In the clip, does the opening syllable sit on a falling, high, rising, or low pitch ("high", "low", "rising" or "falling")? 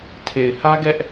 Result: low